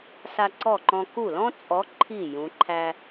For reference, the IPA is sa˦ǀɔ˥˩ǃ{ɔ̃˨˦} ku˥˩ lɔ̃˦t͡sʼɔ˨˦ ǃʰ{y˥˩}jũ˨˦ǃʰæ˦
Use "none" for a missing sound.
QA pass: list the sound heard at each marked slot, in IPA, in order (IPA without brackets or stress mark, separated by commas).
ɔ̃˦, i˥˩